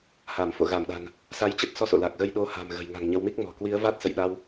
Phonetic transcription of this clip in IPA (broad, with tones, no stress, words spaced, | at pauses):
ha˧˩mfo̰˧˨ɣa˧˩mɗa̤˨˩n | sa˧jt͡ɕə˦˥t̚sɔ˧ so̰˧˨la˨˩k̚ɣə˧j ɗo˨˦ ha̤˨˩mɣə̤˨˩jŋa̤˨˩ŋ ɲə˨˦w mi˦˥k̚mɔ̤˨˩ kwi˨˦ə̯va˦˥t̚ sə̰˧˨jɗa˧w